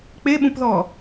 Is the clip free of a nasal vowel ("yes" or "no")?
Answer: no